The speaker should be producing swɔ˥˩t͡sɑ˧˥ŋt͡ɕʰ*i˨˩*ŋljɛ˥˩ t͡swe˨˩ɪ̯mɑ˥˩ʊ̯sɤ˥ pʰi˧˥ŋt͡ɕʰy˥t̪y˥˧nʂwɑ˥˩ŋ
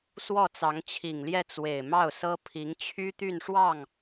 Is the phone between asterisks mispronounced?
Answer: no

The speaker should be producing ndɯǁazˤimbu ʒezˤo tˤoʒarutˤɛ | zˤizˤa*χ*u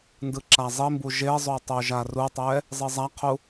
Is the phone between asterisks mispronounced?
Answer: yes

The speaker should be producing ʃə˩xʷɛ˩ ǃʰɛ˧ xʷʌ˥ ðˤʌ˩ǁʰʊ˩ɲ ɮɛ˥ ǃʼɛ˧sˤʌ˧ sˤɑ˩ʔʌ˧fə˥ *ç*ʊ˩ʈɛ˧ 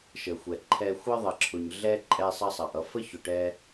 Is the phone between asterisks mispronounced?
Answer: no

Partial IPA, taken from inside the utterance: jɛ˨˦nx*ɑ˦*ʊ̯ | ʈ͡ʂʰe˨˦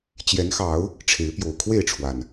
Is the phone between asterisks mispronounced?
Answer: yes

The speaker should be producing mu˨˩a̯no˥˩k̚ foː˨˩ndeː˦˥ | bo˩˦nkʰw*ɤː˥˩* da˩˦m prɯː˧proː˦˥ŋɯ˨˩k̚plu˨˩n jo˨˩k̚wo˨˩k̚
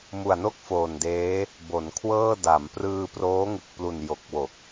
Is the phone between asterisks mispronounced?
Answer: no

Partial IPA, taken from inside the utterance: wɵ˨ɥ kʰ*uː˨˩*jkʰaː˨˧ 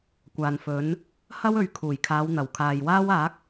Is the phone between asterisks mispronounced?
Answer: no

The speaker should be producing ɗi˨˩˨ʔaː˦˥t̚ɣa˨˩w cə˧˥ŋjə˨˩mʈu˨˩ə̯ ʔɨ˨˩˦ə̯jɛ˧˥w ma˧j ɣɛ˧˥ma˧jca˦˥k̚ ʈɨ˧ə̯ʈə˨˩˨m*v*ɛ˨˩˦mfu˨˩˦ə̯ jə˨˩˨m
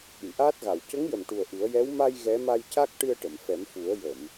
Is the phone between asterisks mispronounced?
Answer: yes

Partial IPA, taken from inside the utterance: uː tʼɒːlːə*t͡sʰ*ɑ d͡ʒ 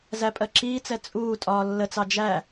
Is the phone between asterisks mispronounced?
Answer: yes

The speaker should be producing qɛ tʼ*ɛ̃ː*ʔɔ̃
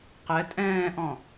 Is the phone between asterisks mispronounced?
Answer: no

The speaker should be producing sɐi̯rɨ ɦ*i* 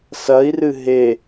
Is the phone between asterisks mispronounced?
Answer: yes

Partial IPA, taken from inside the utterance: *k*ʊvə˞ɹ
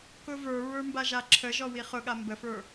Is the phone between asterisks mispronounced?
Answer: no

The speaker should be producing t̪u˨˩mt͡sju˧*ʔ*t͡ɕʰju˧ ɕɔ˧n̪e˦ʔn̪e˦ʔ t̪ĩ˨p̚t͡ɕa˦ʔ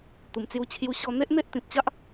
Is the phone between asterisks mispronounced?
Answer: yes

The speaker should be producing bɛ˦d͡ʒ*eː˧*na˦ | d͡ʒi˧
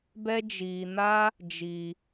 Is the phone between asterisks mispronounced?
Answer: yes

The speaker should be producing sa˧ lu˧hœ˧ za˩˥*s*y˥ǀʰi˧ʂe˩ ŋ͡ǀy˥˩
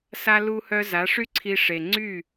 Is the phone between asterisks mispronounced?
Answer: yes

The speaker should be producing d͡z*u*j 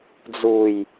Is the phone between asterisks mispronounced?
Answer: no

